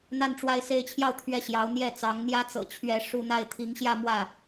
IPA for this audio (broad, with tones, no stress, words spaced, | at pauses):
n̪a˥˧nʈ͡ʂwa˥˧ɪ̯ se˥˧ɪ̯t͡ɕʰjɑ˥˧ʊ̯ t̪ʰɥɛ˥˩ɕjɑ˧˥ʊ̯n̪jɛ˥˩ t͡sɑ˧˥ŋn̪jä˥t͡sɤ̰˨˩ t͡ɕʰɥɛ˥˧ʂu˥˧ n̪a˥˩ɪ̯t̪ʰi˧˥ŋɕjä˥˧ mwä˥˩